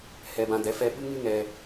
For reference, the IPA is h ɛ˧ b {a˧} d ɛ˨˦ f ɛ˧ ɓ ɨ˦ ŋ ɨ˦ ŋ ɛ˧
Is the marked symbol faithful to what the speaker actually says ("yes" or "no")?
no